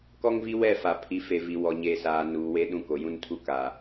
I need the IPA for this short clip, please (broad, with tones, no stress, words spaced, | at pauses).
kɔ˦ŋvi˦wɛ˦˨ fa˨ pʰi˨fe˨ vi˨wɔ˨ ɲeː˨saː˨ nuː˨we˦ ɗũ˦ko˨ jũ˦ntʰu˦ ka˨